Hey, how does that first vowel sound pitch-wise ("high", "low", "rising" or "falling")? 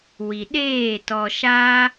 low